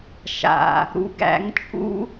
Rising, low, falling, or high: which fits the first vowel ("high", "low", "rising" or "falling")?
low